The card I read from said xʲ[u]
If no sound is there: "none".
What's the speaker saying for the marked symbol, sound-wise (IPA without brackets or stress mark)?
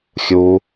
u